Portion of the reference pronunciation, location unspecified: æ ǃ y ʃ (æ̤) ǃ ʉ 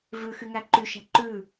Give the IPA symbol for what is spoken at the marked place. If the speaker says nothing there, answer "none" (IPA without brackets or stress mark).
æ̤